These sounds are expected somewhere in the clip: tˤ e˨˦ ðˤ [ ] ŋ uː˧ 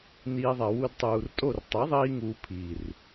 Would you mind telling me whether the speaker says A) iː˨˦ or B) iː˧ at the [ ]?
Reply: B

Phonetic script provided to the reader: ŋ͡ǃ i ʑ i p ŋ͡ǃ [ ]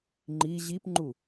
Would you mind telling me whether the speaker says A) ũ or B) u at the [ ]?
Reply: B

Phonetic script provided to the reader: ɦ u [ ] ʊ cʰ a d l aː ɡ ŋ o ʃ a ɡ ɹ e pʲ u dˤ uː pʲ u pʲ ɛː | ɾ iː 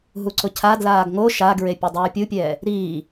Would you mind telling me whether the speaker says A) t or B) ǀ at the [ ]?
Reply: B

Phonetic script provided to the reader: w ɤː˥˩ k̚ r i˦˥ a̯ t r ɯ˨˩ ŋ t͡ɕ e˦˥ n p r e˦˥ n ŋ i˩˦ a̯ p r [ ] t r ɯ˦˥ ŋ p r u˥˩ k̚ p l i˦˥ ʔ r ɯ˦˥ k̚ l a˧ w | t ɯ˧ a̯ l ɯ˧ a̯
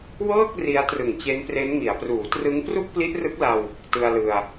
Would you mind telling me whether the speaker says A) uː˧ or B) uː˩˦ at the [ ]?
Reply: B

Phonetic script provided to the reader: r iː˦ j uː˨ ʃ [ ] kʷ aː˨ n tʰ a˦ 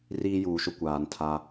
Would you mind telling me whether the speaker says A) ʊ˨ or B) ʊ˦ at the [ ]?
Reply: B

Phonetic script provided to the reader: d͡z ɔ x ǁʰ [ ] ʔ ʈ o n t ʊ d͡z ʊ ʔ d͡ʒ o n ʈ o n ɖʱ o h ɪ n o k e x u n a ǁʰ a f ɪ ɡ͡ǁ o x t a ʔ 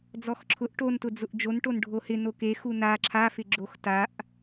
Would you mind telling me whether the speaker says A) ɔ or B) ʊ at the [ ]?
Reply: B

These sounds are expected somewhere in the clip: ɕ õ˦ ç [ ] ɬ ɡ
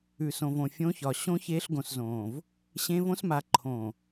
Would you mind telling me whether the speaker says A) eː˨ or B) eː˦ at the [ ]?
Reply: B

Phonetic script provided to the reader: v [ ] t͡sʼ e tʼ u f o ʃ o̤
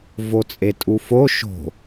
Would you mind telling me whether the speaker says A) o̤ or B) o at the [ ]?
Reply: B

